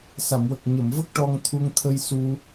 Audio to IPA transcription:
s a˨˩˨ m w ə˨˩ k̚ ɲ ə˨˩˨ m v ə˦˥ k̚ ʈ ɔ˧ ŋ t̪ʰ u˧ ŋ t̪ʰ ə˧ j s u˧

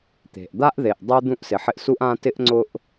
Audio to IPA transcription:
t̪ e̤˩ ʔ d̪ a˥ ʔ ð e˩ ʔ dˤ e˥ d̪ ũ˥ ʔ s ɪ˩ ħ ɪ˦ ʔ s u˦ ʔ ã˦ t ɪ˥ ʔ ŋ͡ǀ ʊ˦ ʔ

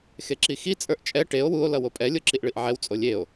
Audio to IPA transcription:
x e ǁ i x i t͡sʼ ə˞ ʔ t͡ʃʼ ɛ ʈ e o̯ w u o̯ l ʌ w o pʼ ɛ lʲ o ǁ i ʔ ɭ i ʔ ʕ ɛ w t͡sʼ o lʲ e o̯

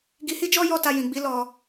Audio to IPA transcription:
ɡ i˧ h i˦ d͡ʒ ɔ˦ j ɔ˦˨ t a˧ j ĩ˨ ɡ͡b i˨˦ l ɔ˧

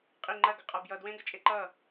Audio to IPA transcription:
qʼ i ŋ͡ǃ ɐ ɡ ə qʼ a b j ʌ d w ẽ ɡ ə t͡ʃʼ e ǃ ʌ

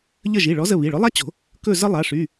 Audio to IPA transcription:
ʎ ə˦˨ ʒ i˩˧˩ ɭ ɔ˨˥ z ə˦˨ β i˩˧˩ ɭ ʊ˨˥ lˠ a˥ t͡ɕ o̤˨˩˦ | k ɵ˦˨ z ə˥ lˠ a˩˧˩ ʂ y˩˧˩

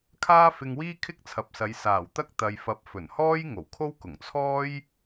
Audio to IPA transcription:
kʰ aː˥ f ɪ˧ ŋ w iː˥ kʰ ɪ˥ k̚ t͡sʰ ɐ˨ p̚ s ɐ˨˧ j s aː˨˩ w t̪ ɐ˥ k̚ t̪ ɐ˨ j f ɐ˨˥ p̚ f ɵ˨˩ n h ɔː˥ j ŋ o˨˩ w kʰ o˥ w k ʊ˨˩ ŋ t͡sʰ ɔː˥ j

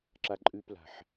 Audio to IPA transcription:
ǁ a ǃʼ ʉ p l a̤ ħ

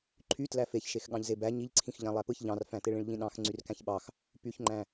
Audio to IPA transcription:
ǃʰ y t l æ f e ç ʃ e x ɠ ɑ̃ ʎ z e b æ ɲ i ʎ ǀʰ ĩ x ʎ æ̃ lˠ æ p ɯ ç ʎ ɑ̃ r f æ̃ t e ɭ ĩ ɭ ʎ ĩ ɗ ɑ̃ x ŋ͡ǀ y r k æ̃ ç ɓ ɑ x | p y ç ŋ͡ǃ æ̃

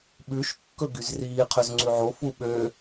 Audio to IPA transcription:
ɓ ʉ ʃ kː ɵ ɡ y z r iː qʰ ø z ŋ͡ǀ ʉ ʕ o f u ɓ ø

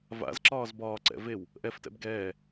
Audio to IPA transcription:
v a̰ z ǁ ɒː z b ɒː ǀ ɛ̰ v e w | ʔ ɛ f t ɛ̰ b ɡ ɛː

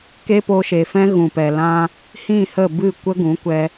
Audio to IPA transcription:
k e˦ p o˧ ʃ e˨ f ɛ̃˦ ɣ ũ˨ p ɛ˨ l ã˧ | h ĩ˦˨ h ə˦˨ b ɨ˦˨ kʷ ə˦ ɡ ũ˨˦ kʷ ɛ˧

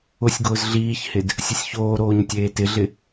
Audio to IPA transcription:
ʊ sʲ ɡ ʊː z ɮ iː ç h ɪ d | sʲ ʊ sʲ ç oː ɾ oː ɲ tʲ eː t ɪ ɮ ɪ

